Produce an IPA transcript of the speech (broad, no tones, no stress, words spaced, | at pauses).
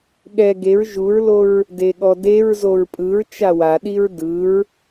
ɠɛ ɡeɹ ʒuɹloɹ | deɠɔdeɹzoɹ pʼɯɹ t͡ʃawaɗiɹ dɯɹ